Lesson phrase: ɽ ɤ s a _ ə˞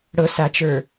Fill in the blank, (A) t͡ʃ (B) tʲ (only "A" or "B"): A